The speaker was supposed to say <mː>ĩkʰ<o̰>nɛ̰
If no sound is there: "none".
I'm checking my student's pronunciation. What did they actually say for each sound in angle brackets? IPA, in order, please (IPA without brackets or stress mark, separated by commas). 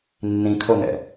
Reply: nː, o